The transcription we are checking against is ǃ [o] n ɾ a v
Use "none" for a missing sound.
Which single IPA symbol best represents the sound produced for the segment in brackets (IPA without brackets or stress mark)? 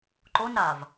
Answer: o